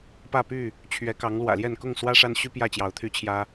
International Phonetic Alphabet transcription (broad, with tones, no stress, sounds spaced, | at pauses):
p ä˥˨ p y˥˨ | t͡ɕʰ ɥ ɛ˨˦ k ɑ˨˦ ŋ l w ä̰˨˩ l j ɛ˥˨ n k ʊ˥˨ ŋ s w ä˦ ʂ a˦ n ɕ y˦ p j ä˥˨ t͡ɕ j ɑ˨˦ ʊ̯ t̪ʰ y˦ t͡ɕʰ j ä˦